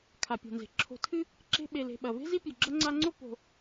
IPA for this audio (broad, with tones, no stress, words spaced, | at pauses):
kʰa˩pʲo̤˩nze̤˩ ǁʰo̤˨tʰɨ˦ | ǁe̤˦ɓe˨le̤˨ ɓɐ˩ve̤˥ zi˥pʲʉ˩ɡ͡ǁɐ˥ ŋ͡ǀa˦ŋ͡ǀo˥ po̤˨